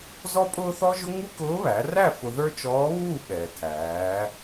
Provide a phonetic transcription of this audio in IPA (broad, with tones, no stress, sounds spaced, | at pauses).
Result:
z ɔ˥ pʼ ʊː˥ θ ɔ˥ ʒ ʊ˥ ŋ u˥ k ʊː˧˥ β æ˩˧ r æ˥˨ f ʊ˧ ð ə˞˥ t͡ʃ ɔː˧˥ β uː˥˨ ɓ ɛː˩ tʰ æː˩˧